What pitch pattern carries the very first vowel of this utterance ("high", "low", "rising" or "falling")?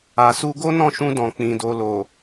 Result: low